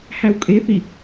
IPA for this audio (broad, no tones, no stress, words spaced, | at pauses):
hæwkʼeθi